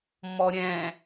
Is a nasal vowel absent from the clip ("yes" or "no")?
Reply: no